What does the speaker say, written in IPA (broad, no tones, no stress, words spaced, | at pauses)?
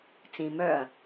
t͡sĩ mœɐ̯